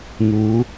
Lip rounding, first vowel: rounded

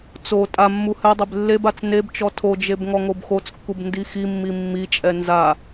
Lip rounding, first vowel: rounded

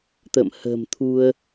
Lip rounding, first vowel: unrounded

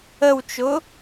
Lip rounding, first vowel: unrounded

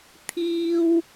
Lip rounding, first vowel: unrounded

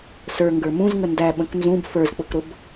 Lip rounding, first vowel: unrounded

